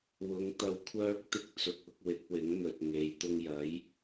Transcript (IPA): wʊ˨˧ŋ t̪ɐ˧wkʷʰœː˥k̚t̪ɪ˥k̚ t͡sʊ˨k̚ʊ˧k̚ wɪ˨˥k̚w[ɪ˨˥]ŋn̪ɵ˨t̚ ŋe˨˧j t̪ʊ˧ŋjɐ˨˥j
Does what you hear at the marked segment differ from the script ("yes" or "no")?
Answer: no